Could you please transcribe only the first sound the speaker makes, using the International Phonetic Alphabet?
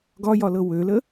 ɡ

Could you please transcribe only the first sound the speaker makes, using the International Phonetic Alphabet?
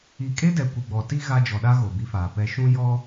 i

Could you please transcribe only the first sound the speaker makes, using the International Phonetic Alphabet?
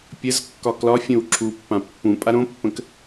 pʲ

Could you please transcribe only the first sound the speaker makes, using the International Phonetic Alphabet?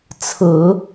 t͡sʰ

